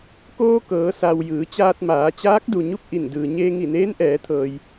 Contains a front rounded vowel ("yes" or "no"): no